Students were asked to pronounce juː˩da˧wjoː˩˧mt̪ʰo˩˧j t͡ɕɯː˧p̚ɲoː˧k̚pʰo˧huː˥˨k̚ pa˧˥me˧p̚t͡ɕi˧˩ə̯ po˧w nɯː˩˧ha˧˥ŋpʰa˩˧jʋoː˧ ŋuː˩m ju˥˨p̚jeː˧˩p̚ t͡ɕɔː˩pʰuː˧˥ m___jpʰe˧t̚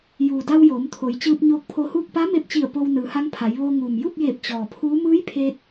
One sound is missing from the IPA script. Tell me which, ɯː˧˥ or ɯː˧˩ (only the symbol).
ɯː˧˥